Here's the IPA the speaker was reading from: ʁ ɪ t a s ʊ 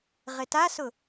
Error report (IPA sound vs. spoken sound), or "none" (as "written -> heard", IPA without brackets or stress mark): none